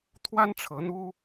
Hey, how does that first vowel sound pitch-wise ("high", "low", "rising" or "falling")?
high